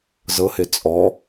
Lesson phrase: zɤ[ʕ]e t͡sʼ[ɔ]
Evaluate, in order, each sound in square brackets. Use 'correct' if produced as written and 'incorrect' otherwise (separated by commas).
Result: incorrect, correct